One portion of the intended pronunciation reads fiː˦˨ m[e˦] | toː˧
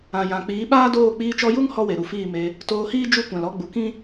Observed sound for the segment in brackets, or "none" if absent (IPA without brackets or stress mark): e˧